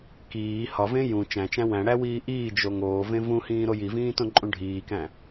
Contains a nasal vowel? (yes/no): yes